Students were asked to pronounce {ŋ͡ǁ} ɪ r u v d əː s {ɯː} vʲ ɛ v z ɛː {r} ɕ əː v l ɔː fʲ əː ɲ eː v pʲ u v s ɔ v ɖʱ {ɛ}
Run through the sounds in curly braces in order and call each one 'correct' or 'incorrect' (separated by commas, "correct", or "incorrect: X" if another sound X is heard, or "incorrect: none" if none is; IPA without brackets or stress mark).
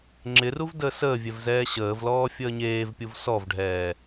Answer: correct, incorrect: əː, incorrect: none, incorrect: ɛː